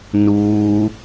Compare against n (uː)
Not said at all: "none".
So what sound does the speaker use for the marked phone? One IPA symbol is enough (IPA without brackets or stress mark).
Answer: uː